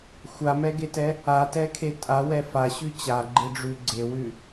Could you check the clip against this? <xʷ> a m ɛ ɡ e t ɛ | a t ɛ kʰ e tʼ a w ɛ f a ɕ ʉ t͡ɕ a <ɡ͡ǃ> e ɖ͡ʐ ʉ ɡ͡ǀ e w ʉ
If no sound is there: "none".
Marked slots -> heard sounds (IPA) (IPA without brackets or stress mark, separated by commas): xʷ, ɡ͡ǃ